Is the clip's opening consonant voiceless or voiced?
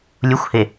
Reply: voiced